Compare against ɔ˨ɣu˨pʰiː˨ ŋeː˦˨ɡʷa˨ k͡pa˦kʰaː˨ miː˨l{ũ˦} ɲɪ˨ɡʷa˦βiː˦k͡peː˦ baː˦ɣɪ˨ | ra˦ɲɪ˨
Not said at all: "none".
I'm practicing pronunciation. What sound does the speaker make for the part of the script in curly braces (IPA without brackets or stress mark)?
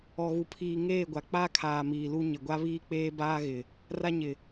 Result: u˦